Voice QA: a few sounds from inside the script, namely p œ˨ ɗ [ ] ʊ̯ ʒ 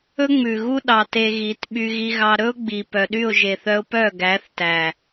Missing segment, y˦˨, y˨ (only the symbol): y˦˨